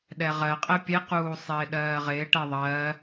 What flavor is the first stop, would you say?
implosive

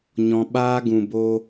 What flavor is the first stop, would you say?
implosive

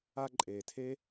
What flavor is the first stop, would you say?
click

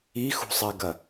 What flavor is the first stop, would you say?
plain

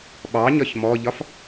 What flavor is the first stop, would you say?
implosive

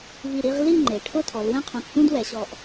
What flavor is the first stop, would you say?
click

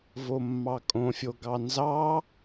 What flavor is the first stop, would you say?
ejective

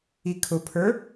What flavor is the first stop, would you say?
aspirated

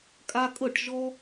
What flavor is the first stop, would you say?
ejective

